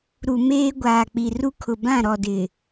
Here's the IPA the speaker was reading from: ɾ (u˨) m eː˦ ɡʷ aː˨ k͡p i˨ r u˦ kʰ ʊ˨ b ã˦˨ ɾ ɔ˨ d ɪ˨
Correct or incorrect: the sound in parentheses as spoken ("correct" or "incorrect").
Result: correct